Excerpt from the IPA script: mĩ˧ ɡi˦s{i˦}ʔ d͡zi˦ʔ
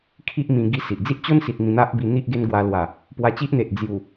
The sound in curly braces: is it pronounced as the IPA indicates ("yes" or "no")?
no